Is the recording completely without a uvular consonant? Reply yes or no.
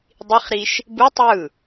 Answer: no